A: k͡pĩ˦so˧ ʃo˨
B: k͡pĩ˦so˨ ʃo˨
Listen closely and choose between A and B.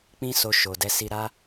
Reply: A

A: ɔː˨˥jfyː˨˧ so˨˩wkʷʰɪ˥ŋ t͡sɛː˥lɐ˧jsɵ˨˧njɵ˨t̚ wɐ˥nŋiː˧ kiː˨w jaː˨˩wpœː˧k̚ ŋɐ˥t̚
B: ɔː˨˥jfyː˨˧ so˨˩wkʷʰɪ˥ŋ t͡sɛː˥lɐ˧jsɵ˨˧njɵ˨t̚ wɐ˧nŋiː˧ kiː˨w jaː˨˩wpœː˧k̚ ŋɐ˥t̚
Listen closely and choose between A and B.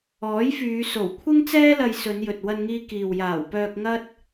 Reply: B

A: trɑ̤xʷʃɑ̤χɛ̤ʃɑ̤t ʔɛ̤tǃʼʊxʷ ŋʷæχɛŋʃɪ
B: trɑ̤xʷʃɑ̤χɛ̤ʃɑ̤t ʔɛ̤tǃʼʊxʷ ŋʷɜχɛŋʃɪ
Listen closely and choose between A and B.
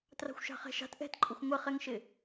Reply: B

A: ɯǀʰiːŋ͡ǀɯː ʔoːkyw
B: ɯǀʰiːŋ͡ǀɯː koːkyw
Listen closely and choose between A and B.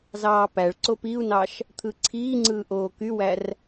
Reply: A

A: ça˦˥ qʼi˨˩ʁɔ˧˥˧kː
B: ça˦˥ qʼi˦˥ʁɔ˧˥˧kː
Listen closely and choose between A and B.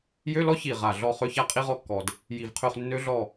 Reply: B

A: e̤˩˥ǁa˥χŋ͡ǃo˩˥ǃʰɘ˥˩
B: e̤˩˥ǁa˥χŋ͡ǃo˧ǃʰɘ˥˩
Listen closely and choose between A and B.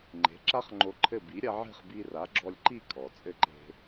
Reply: B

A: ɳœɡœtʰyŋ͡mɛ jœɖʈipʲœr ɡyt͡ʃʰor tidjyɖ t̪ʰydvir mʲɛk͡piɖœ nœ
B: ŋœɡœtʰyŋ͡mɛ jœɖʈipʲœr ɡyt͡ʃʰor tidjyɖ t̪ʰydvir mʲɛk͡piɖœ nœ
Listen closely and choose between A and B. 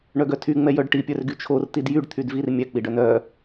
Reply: A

